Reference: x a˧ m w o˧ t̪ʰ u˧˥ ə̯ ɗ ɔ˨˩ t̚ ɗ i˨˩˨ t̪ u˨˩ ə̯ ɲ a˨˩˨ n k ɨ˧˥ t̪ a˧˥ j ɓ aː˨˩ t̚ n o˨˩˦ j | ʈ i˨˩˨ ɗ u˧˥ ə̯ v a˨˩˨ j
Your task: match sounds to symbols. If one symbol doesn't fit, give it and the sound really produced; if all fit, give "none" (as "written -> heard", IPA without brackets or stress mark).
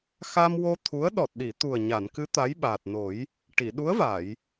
none